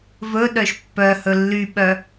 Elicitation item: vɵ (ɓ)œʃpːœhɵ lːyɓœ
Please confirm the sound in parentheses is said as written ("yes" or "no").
no